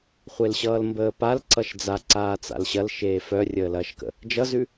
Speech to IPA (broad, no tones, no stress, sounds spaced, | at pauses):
χʷ e l ɕ ʌː l m b əː p a l ǀ ʌ ʃ d͡z a ǀ aː t͡s a̰ l ɕ ɐ l ʃ eː f œ rʲ əː l ɐː ʃ k ə̰ | d͡ʒ ʌ z ʉ